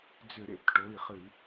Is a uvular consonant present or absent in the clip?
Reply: present